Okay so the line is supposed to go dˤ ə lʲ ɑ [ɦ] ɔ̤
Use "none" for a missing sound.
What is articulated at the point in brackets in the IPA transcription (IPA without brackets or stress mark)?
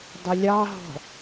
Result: ɦ